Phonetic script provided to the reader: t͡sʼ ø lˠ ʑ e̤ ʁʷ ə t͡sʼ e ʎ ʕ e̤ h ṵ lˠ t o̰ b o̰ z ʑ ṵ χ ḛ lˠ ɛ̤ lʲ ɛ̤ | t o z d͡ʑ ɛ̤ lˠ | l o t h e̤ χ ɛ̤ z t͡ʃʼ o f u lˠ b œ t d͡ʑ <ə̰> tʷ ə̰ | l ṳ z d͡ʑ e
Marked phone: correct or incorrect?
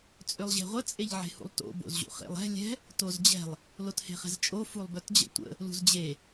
correct